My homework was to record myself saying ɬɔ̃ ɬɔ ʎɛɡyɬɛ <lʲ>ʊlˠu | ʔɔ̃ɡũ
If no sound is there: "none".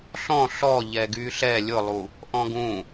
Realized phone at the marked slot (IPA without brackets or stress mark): lʲ